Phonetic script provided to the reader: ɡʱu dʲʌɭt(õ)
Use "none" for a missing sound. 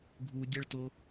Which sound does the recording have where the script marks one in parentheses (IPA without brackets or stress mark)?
o